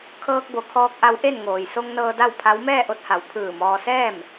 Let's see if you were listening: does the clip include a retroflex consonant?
no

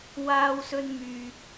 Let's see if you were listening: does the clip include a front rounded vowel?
yes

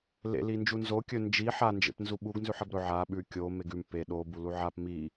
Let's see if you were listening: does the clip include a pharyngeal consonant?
yes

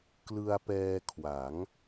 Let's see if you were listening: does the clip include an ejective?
no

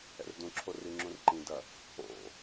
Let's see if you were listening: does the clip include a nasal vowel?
yes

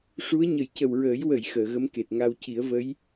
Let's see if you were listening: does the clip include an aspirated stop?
no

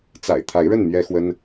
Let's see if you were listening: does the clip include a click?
no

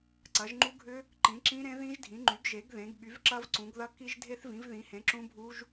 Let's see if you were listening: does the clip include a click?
yes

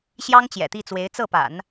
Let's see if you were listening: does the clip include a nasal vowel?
no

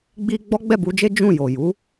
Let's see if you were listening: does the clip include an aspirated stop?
no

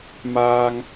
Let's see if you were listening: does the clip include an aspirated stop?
no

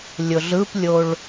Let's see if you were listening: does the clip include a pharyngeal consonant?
no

